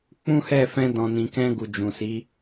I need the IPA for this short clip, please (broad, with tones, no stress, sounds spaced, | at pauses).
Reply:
k͡p ũ˦ h ɛ˦˨ f ɛ̃˧ d ɔ̃˨ n ĩ˨ k ɛ̃˧ ɡ u˨ d͡ʒ ũ˨ s i˨˦